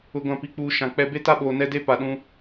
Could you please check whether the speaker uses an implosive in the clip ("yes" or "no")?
yes